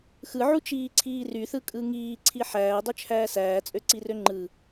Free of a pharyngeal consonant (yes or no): no